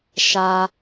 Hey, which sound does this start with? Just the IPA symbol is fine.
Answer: ʃ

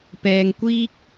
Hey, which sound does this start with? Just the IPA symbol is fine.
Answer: p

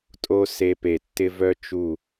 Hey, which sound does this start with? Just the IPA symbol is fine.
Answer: tʼ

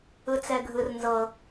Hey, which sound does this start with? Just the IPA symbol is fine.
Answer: ɯ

